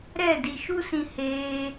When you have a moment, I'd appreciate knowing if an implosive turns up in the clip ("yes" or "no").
no